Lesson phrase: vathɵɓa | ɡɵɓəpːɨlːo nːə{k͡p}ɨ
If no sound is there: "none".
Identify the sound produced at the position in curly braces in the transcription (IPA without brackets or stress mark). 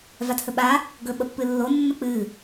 k͡p